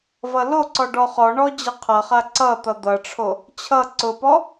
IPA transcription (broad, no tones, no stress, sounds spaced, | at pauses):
v ʌ l o ǀ ɔ ɖ ɔ χ ɔ ɳ ɔ d͡ʑ ʌ qʰ ʌ χ a ǀ ʌ t̪ ʌ d̪ ʌ ʈ͡ʂʰ o | t͡ɕʰ ʌ ǀ ʊ p ɔ